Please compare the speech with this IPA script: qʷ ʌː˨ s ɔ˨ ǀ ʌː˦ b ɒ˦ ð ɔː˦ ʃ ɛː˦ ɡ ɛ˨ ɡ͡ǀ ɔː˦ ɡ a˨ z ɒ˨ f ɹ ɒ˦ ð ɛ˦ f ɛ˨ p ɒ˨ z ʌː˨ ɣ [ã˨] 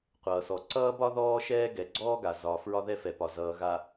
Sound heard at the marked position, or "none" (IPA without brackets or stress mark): a˨